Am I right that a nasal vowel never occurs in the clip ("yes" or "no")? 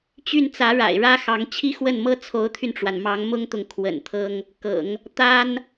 yes